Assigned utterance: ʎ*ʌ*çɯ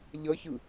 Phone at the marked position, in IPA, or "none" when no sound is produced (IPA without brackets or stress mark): ʌ